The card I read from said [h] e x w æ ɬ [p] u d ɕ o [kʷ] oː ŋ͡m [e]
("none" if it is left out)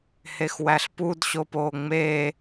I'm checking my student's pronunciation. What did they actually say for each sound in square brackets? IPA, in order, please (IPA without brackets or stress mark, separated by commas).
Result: h, p, p, eː